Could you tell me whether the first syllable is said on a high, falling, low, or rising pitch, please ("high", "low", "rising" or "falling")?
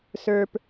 high